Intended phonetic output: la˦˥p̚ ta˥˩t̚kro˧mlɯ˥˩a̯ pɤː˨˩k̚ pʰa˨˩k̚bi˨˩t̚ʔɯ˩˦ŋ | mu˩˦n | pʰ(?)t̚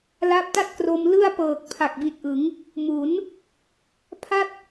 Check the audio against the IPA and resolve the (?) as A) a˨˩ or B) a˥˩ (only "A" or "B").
B